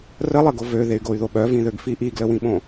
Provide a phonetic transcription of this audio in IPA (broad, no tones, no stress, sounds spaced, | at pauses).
r ə lˠ ə ɡ o v ø ð e y̯ ɡ o y̯ ð o ɓ œ v ĩ ð ø ɡ f i ʔ i ɡ l ə w ĩ ɓ õ